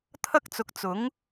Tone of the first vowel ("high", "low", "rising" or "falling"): high